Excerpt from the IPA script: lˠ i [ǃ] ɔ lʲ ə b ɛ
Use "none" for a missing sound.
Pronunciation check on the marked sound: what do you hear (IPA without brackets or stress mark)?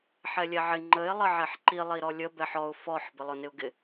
ɾ